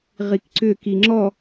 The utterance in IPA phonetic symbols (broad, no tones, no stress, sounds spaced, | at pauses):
ʁ i k ǀ ʏ k i ŋ͡ǁ ɔ